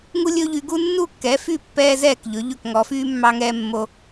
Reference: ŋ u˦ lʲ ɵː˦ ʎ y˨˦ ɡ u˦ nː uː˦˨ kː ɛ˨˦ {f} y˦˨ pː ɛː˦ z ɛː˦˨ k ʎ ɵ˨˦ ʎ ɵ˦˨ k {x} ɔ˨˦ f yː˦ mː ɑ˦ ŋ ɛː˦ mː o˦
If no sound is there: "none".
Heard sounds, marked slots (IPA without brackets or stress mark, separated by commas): f, ŋ